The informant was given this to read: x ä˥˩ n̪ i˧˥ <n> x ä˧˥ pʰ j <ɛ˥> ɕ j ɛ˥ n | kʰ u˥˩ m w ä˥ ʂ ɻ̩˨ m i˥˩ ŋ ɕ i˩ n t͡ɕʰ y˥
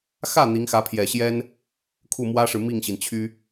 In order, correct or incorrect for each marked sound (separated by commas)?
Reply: incorrect, incorrect